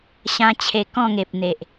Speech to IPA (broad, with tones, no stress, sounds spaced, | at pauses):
ɕ ã˦ t͡ɕʰ e˧ k ɔ̃˥˧ ŋ e˨ p̚ n̪ e˨ ʔ